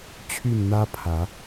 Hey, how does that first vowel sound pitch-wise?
falling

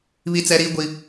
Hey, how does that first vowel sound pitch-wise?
high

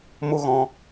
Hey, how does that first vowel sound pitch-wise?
high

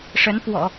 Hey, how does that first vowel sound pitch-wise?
rising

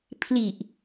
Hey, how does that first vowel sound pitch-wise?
low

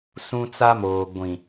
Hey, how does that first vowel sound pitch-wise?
high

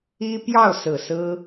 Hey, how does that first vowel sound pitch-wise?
high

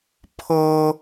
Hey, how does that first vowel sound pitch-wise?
high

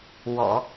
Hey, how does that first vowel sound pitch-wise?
low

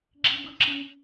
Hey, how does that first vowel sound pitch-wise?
high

